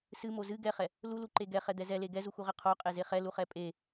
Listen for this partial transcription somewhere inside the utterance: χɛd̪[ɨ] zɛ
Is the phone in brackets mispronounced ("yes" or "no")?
yes